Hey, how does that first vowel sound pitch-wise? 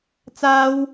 high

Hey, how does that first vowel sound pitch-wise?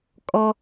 high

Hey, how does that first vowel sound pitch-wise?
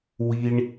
low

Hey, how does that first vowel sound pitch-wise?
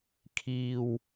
low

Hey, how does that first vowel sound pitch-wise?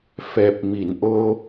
low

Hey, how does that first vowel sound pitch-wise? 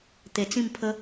low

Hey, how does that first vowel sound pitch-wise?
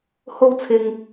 high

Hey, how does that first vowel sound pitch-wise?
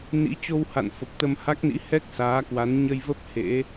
rising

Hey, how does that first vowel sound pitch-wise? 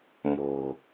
low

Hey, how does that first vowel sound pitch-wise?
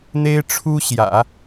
high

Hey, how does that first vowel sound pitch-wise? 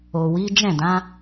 low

